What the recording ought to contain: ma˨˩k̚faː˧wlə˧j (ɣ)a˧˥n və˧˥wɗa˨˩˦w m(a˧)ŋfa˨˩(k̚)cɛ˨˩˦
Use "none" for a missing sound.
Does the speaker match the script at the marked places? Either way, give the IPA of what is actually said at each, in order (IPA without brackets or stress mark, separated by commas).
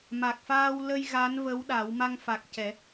ɣ, a˧, k̚